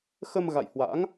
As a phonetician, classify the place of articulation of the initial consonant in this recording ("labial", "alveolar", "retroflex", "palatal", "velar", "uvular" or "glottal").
velar